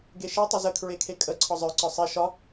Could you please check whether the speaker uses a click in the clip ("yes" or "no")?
yes